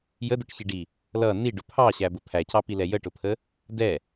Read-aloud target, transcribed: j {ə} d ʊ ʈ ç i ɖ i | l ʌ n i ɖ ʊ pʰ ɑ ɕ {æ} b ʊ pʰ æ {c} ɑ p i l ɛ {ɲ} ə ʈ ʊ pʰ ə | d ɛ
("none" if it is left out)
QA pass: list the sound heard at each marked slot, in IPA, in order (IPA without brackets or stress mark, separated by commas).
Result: ə, æ, c, j